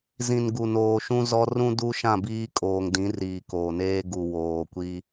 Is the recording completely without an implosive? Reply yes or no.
yes